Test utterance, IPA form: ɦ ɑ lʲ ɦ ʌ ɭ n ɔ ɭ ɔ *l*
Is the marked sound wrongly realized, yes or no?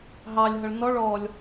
yes